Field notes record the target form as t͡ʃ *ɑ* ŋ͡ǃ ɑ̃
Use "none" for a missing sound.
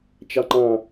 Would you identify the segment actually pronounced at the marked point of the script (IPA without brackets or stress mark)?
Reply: ɑ